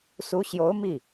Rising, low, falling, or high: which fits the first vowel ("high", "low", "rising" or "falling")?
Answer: rising